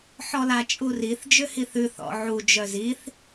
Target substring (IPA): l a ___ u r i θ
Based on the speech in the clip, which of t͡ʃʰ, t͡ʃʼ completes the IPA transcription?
t͡ʃʼ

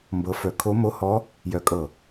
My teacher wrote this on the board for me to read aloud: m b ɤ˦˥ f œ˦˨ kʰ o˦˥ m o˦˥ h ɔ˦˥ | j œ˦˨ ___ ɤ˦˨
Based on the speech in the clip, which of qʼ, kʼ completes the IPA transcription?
kʼ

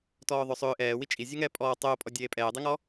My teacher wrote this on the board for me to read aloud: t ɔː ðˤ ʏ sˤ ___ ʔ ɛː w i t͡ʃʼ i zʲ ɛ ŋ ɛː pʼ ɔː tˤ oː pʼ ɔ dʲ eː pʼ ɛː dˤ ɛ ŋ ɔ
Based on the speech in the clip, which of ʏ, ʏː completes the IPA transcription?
ʏː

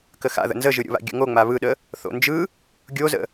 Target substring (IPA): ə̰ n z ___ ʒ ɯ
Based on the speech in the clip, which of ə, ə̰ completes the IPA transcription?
ə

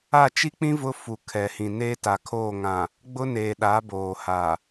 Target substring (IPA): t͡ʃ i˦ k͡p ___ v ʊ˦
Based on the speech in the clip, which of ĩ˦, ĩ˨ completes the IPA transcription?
ĩ˦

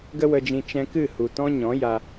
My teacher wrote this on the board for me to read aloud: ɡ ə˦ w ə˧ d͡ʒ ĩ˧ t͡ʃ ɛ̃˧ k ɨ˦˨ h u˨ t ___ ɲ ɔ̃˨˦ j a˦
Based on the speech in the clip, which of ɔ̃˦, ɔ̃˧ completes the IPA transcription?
ɔ̃˦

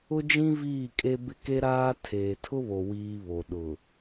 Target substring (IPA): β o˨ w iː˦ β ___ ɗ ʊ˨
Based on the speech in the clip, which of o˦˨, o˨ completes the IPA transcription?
o˨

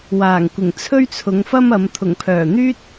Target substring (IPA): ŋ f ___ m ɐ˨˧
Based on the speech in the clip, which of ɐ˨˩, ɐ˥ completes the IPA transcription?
ɐ˥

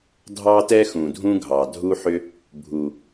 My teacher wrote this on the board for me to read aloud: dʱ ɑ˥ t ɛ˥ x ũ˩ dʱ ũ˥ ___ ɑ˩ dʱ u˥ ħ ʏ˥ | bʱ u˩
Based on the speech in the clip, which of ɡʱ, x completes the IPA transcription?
ɡʱ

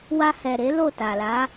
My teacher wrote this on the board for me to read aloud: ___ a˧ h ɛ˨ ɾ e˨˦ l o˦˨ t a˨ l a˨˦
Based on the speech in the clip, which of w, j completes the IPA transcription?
w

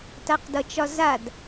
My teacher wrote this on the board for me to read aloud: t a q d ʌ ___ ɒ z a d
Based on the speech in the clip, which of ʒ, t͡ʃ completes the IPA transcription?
t͡ʃ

